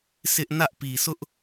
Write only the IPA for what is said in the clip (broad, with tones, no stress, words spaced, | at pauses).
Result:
sɪ˦ʔ nä˦ʔpi˨sʊ˦ʔ